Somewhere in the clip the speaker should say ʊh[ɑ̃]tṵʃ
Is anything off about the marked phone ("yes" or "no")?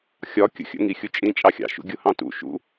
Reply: no